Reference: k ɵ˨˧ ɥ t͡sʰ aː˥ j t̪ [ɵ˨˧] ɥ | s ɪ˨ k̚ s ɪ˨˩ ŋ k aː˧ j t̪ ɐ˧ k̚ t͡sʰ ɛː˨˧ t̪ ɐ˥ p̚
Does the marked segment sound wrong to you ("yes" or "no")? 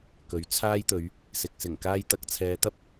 no